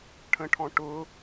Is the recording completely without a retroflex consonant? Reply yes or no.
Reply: no